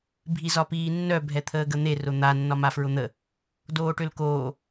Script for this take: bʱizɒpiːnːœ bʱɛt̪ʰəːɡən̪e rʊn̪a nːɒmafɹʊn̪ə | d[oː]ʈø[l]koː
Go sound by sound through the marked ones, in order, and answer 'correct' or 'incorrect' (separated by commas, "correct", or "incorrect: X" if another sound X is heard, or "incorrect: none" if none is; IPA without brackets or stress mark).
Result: correct, correct